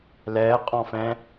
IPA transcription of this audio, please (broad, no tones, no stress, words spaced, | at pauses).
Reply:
lɛːqʼɔ̃fɛ̃